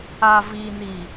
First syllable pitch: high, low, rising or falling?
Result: low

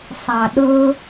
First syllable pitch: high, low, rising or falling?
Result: low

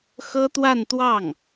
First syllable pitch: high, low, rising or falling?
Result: high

